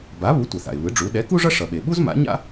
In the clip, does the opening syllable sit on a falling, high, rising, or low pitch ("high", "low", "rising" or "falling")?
rising